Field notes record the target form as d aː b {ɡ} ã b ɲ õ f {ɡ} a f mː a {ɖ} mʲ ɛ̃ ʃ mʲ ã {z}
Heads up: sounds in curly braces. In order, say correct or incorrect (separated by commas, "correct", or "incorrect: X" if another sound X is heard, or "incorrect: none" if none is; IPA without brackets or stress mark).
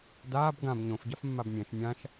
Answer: correct, incorrect: ɟ, incorrect: b, incorrect: ʃ